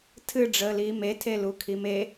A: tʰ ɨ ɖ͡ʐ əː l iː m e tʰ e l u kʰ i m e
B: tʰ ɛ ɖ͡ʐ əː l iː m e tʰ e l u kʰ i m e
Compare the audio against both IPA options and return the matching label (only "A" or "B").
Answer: A